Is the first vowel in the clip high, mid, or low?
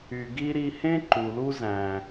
high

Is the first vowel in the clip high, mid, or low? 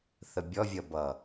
mid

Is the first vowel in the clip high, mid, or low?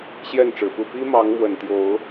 mid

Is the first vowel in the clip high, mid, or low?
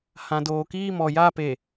low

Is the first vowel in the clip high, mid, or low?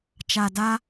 low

